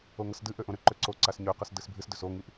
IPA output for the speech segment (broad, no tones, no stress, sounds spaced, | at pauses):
o ŋ ʌ s d ɨ ʔ ø ʔ õ ɾ ʏ ǃ ø ǀ o ǀ a s ɲ ø q ʌ s d ɨ s bʱ ɨ s d ʏ s o ŋ i ʔ